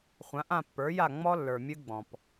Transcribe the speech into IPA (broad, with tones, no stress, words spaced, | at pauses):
χʷã˩˥ʔã˥˩pːə˞˩˥ja˥˩ ŋ͡mɔ˧lːə˞˩ mʲɨ˧ɡ͡bɔ̃˩p